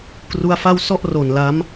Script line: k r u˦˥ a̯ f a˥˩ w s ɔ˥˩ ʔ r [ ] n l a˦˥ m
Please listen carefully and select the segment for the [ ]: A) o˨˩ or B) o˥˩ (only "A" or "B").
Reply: A